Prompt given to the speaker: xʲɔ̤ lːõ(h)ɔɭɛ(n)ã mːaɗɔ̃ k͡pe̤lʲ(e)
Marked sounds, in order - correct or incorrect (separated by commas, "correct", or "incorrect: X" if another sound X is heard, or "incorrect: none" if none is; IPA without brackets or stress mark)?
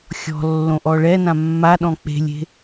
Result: incorrect: ʔ, correct, incorrect: e̤